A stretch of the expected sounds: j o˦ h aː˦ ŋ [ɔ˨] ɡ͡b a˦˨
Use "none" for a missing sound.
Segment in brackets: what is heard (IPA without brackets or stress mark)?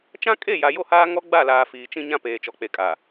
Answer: ɔ˦